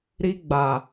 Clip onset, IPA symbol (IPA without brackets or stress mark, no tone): ɾ